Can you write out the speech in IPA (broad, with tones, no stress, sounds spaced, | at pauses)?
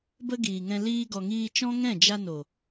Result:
b ə˦ ɡ iː˨ ŋ ɛ̃˧ l iː˧ ɡ ɔ˨ ŋ iː˧ t͡ʃ ɔ̃˦ ŋ ɛ̃˦˨ d͡ʒ a˧ n o˨